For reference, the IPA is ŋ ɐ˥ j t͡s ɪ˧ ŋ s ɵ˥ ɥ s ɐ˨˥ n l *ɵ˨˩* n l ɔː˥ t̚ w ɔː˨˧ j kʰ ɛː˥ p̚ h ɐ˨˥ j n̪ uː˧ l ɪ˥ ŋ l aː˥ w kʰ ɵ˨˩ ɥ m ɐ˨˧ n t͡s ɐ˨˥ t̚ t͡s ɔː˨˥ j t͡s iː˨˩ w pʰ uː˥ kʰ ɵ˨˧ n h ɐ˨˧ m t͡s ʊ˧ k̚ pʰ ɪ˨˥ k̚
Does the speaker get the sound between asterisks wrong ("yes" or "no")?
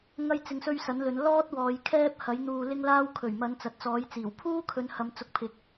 yes